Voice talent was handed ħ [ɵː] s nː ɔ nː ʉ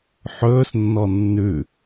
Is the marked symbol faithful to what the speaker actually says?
yes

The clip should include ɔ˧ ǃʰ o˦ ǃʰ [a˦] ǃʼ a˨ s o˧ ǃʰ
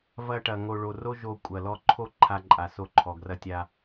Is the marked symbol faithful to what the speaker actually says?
no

